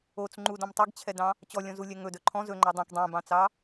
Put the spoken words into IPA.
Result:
ot͡s ŋ͡ǃudɔ̃m tˤɛɡt͡ɕʰɛdɑ̃ | t͡ɕɔlʲɔ̃zulʲɛ ŋɵdɵ ǃʰɔ̃ zɵŋ͡ǃɔ dˤɛ̃k dˤɛ̃bɑ̃t͡sɑ

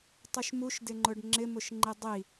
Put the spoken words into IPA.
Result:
tˤuʃmuʃdɪŋ͡ǃʊɖ ŋ͡ǁɪmʊʃŋ͡ǃi dˤi

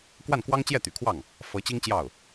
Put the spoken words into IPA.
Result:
kwa˥˩nkwɑ˥ŋ t͡ɕjɛ˥˩t̪y̰˨˩kʰwɑ˥˩ŋ | fɤ˧˥t͡ɕi˥ŋt͡ɕjɑ˥˩ʊ̯

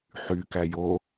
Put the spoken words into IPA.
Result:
ħykæ jo

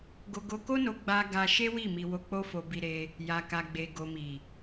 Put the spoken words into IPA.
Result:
ɡo˧ɡo˧ko˦no˧ ɡ͡ba˧ ɡa˧ʃe˦ wi˦˨mi˧wo˧ k͡po˦fo˧bi˧ɾe˧ | ja˨ka˨ɡ͡be˨ ɡo˨mi˨

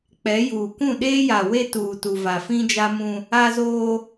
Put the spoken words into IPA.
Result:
k͡pɛ˨˦juː˨ kũ˦˨ɗeː˦ja˨we˦ tuː˨tu˨va˨ fĩ˦d͡ʒa˦mũ˦ | a˦zoː˦

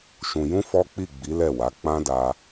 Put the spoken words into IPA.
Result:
ʃũ˧ jũ˦ fɔ˦k͡pi˦˨ ɡ͡bi˨˦ lɛ˦˨wa˨˦ k͡pã˦da˧

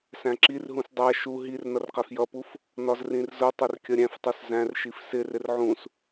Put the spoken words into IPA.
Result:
sæ̃ǁirɦũs dˤæ ʃu ɦir nʌrqæfjʌpuf | nɒzrĩrzʊtˤʊr kʲʌɾʲæ̃ftˤus zæ̃rʃif sɪrɪr ʕũs

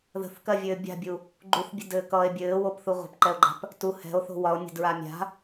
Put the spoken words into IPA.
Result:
ðə̤θkɜvʲɘː bʲa̤bʲu | ɡ͡ǃuθbʲə̤dɘːkʌːe̯ bʲɘːwopθu ʁʷə̤pǃɛo̯ɡ͡ǃa̤p | tu hɛ̤o̯θo̤ wɒo̯nʲə̤dɹa mʲa̤

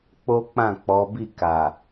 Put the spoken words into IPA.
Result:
k͡po˦k͡pã˦˨ k͡pɔ˨˦ bi˦˨ka˨

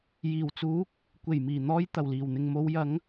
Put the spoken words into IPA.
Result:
jiː˨˩wt͡suː˨˥k̚ | kʷe˨˩jmiː˨˩n̪ɔː˧j t̪ɐ˨˩wliː˨˩wn̪ɪ˨ŋ mo˨˧wjɐ˨˥ŋ

